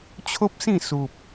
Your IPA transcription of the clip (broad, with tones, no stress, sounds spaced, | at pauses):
t͡ɕʰ o˦ p̚ s ĩ˥˧ s u˨ p̚